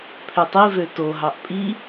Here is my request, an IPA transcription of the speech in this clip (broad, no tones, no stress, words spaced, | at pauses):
pʰøtˤivø toɦɑʔ pʼi